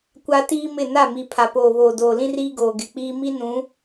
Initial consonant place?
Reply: velar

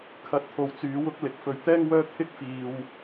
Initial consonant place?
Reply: velar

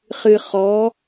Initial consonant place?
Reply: uvular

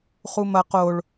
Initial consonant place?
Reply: uvular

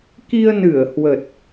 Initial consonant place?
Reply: velar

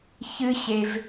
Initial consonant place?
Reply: palatal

